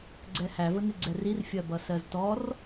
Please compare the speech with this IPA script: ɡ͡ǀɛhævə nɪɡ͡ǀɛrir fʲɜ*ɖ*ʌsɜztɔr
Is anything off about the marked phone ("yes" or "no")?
yes